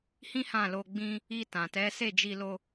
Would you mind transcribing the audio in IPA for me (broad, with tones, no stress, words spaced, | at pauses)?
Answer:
hĩ˦hã˦˨lo˧ ɡ͡bĩ˧ | i˧tã˨tɛ˨˦ se˦˨d͡ʒi˧lo˧